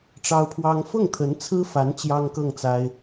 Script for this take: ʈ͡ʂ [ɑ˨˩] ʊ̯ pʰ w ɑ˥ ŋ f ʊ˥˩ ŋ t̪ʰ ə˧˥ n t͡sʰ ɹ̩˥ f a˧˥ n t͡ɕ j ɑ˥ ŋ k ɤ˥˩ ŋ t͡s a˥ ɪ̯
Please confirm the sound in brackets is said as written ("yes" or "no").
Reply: no